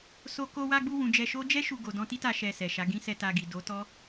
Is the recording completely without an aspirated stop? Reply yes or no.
yes